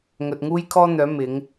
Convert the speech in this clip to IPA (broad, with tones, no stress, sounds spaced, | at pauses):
ŋ ɵ˨ t̚ ŋ uː˥ j kʰ ɔː˥ n̪ œː˨˥ m ɪ˨˥ ŋ